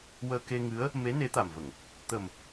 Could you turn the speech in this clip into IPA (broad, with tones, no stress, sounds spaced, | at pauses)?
w əː˧ k e˧ ŋ ɨ˧˥ ə̯ | m e˧˥ n e˧˥ t̪ a˨˩ m v ə˨˩˨ ŋ | t̪ ə˨˩ m